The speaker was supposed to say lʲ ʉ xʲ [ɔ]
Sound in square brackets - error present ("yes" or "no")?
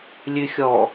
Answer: no